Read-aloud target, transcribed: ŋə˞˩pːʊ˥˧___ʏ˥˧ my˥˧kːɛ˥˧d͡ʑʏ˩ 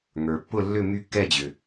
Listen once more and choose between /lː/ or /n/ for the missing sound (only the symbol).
lː